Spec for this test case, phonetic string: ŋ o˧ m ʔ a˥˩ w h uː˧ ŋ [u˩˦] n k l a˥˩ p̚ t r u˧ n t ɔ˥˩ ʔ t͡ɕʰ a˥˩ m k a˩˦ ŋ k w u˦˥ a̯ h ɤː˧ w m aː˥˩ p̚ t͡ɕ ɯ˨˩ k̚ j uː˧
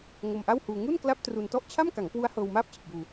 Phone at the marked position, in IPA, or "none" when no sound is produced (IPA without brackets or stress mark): u˥˩